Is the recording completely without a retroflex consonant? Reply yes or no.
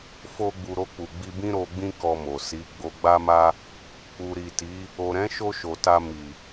yes